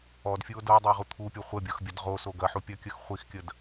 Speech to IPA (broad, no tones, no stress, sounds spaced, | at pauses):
ɔ d fʲ u o̯ d ɤ e̯ dˤ ʏ e̯ ʁ u t̪ʰ u pʲ ɔ χʷ ə bʲ ɤ x bʲ ɐ d ʁ o s o ɡ ɐ ħ u pʲ ɐ kʲ ə x χʷ i x kʲ ə d